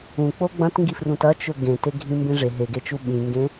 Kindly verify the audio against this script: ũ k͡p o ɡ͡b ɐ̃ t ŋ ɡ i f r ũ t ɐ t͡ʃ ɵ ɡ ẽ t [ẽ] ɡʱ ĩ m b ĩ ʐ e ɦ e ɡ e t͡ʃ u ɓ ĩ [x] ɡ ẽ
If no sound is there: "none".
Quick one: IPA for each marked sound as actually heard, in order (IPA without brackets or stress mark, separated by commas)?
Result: e, ŋ